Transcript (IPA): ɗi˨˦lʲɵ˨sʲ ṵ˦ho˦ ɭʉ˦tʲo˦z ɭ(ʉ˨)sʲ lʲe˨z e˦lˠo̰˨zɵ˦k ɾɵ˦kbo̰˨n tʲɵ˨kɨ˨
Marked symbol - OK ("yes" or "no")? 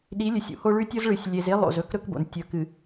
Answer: no